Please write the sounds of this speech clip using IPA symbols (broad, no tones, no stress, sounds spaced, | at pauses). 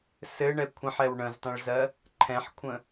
s ɘ ɳ ɛ kʷʰ ə̃ ħ ɛ w ɳ ə̃ z tˤ ĩ ɭ z ɜ | ǃʰ ɛ̃ ħ kʷʰ ə̃